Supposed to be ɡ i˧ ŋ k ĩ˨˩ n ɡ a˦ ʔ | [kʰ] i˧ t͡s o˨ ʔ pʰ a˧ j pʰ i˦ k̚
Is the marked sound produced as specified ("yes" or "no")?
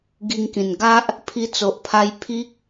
no